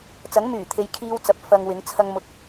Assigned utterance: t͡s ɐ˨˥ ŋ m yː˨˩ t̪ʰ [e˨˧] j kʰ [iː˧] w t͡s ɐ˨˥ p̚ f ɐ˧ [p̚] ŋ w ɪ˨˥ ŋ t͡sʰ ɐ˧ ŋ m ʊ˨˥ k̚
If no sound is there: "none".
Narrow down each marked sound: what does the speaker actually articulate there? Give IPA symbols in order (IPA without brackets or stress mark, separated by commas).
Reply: e˨˧, iː˧, none